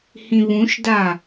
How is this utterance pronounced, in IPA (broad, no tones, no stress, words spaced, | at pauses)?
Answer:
hĩβũʃda